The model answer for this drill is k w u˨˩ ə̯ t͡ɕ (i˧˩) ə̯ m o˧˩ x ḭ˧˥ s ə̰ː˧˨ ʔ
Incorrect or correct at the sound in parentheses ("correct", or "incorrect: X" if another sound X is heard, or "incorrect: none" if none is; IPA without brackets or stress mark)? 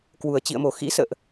incorrect: ḭ˧˨